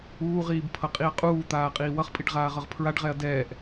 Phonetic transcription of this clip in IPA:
uː ʁ iː b pʰ ʌ qʼ i ɐ̯ qʼ uː t̪ aː qʼ iː w ʌ χ pʼ i ɖ ʁ aː ʁ ʌ ʁ pʰ ɹ a ɖ ʁ ɛ ɐ̯ d ɛː ʔ

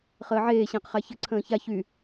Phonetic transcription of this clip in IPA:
χ əː ʕ eː ɕ ə̃ː q χ a ç ə ǀʰ ə̃ː ç a ç y

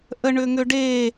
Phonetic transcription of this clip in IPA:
ʔ ə ɳ ʏ ŋ ʏ ɖ e

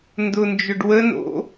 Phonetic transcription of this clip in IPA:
n d ʊ n d͡ʒ ʊ ɖ w ə n o̰

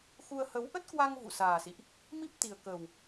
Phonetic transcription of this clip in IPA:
x u˧ ə̯ h ə˨˦ w ʔ ə˦˥ t̚ k w a˧ ŋ v ṵ˧˨ s aː˨˩ s ḭ˧˨ ʔ | m i˦˥ p̚ t̪ i˨˩ ə̯ k ə˨˩ w

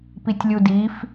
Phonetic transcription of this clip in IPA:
p i tʲ lʲ u d i f

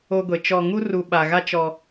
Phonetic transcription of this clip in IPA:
o˦ ɡʷ e˨ t͡ʃ ɔ˨ ŋ u˦ r u˨ ɓ a˨ ɣ a˦ t͡ʃ ɔ˦

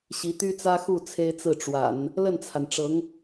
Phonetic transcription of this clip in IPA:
ɕ i˧˥ t̪ y˥ t͡s ä˥ x u˥˩ t͡sʰ e˥ ɪ̯ t͡s ɹ̩˥˩ ʈ͡ʂ w a̰˨˩˦ n | l ə˥˩ n t͡sʰ a˩ n ʈ͡ʂ ɤ˧˥ ŋ

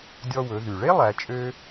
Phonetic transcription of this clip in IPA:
dʲ ɔ˧ w ɵ˩˧ ð y˩ ɭ e˥ lˠ æ˩˧ t͡ʃʼ ø˥

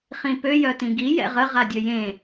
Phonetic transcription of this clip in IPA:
χ ĩ p ø j œ t ĩ ɡ i j ɛ̰ ʁ ə ʁ a dʲ ø j ẽ

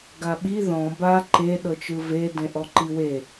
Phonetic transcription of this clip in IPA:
ɡ a ɓ i ð ɔ̃ b a ǃ e ɗ ɤ t͡ʃ ɯ v e d ẽ ʔ ɔ ǃ i w e

